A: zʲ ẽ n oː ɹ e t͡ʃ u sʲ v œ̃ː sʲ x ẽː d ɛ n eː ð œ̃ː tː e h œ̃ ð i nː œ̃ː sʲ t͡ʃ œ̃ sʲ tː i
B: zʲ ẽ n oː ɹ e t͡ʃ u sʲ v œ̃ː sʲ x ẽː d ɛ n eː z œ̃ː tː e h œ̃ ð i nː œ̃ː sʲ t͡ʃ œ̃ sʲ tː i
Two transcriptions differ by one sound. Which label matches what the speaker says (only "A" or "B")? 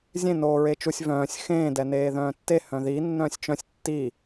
A